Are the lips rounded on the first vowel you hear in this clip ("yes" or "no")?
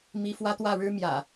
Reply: no